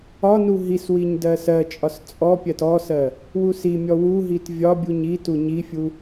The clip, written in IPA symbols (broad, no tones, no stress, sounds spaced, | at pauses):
ɒ n u ɦ i s w i ɲ d ɜ s ɜ t͡ʃʼ ɒ s t͡sʼ ɔ pʲ ɜ t ɔ s ɜ | w u s i mʲ ɔ w u ɦ i t vʲ ɒ bʲ u ɲ i t u ɲ i fʲ u